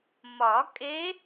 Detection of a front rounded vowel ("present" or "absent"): absent